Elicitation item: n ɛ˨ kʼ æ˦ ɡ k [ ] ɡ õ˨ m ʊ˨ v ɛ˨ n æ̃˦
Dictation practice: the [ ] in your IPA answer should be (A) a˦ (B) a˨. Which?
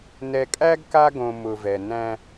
A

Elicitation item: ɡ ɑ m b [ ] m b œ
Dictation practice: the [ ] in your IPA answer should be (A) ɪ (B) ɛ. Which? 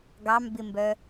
A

